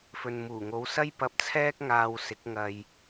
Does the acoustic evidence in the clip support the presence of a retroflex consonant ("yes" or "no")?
no